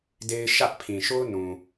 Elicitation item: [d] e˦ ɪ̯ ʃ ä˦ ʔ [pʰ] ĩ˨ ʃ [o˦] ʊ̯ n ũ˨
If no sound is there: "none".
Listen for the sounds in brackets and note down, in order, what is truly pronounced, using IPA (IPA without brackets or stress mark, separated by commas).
d, pʰ, o˦